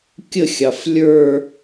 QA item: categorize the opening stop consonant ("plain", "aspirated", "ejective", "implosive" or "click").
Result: plain